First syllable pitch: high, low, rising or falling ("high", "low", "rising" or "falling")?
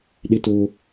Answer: high